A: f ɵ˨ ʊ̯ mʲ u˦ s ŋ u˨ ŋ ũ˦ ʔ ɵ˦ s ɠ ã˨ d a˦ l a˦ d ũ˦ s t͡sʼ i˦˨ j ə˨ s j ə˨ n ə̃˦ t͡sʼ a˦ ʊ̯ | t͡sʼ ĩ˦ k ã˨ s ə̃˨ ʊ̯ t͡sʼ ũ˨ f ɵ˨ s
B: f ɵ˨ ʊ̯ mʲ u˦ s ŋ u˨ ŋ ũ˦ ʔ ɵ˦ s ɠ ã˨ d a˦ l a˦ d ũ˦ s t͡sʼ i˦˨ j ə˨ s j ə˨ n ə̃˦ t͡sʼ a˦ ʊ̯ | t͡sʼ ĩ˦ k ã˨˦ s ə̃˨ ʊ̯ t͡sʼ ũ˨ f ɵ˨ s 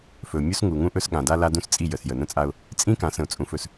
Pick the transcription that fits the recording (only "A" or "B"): B